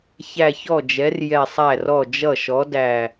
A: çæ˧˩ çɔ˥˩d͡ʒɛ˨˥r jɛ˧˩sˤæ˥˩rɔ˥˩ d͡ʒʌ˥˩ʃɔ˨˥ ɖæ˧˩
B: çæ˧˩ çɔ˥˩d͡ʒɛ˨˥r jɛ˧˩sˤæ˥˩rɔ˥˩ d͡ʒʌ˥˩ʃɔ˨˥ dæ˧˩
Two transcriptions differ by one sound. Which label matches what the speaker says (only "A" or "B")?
B